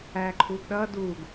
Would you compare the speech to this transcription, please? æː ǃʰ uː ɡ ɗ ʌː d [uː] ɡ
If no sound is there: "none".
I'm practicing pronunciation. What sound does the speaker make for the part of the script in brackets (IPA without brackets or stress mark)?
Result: uː